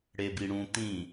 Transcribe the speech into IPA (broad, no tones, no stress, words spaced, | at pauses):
ɽebiɽũ t̪ĩ